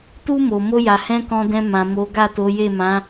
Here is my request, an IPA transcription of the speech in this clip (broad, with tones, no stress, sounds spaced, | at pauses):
t u˦ m o˧ m o˧ j a˨ h ɛ̃˧ k ɔ̃˧ d ɛ̃˧ m ã˨ m o˨˦ ɡ a˦˨ t o˨˦ j e˦˨ m ã˨˦